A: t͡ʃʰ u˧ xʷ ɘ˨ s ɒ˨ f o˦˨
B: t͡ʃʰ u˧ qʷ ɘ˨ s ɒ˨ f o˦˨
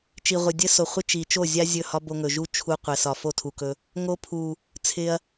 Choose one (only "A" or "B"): B